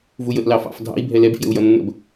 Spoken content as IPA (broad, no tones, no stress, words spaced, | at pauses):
vujəʔlɑ fɑ̰f dʱɑ̰i̯ bʱɛlɛbfjə̰u̯ jʌnːə̰b